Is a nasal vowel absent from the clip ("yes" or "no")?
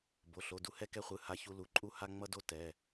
yes